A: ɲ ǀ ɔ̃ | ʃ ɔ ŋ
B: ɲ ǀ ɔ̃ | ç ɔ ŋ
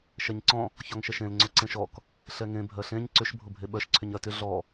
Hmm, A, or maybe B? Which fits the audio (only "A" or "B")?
B